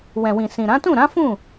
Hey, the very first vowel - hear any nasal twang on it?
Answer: yes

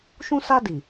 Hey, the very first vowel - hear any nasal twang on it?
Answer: yes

